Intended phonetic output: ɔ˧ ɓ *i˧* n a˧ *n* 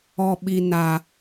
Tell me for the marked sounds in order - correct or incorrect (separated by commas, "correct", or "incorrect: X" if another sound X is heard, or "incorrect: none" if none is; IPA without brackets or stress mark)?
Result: correct, incorrect: none